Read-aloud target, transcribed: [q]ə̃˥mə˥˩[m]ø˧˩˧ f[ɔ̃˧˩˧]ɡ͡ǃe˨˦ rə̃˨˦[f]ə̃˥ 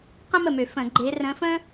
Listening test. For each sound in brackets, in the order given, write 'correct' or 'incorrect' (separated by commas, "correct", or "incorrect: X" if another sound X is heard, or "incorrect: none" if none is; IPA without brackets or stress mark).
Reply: correct, correct, incorrect: ə̃˧˩˧, correct